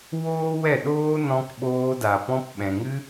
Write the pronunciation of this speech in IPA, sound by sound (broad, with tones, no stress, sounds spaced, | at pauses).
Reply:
w oː˦ w ɛ˦˨ ɗ oː˦ n ɔ̃˧ k ɓ oː˧ d a˨ p ɔ̃˧ p ɓ ɛ̃˨ ŋ ɨ˦